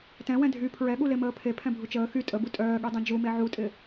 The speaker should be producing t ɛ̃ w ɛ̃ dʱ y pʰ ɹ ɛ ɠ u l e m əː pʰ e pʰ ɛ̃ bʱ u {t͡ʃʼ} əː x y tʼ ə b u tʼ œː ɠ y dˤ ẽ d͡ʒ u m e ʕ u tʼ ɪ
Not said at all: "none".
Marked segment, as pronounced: t͡ʃ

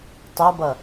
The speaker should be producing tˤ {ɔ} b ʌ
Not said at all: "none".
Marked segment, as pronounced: ʌ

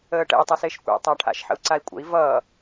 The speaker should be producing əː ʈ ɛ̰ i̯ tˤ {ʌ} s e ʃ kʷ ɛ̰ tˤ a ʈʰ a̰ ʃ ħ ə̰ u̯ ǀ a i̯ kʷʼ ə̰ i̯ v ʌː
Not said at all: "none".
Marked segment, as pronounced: ʌ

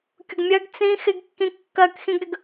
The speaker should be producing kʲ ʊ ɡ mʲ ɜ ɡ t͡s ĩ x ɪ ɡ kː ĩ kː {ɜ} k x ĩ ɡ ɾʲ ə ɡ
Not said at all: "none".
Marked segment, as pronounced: ɜ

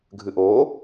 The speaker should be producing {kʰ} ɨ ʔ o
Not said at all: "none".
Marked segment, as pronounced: ɡʱ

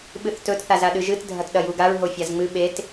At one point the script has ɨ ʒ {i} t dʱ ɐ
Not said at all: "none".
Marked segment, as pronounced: ɨ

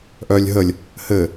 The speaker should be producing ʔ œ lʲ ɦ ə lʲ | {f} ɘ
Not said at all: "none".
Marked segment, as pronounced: h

